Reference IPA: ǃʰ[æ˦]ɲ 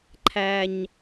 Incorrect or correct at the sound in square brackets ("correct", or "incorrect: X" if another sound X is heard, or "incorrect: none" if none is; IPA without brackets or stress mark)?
correct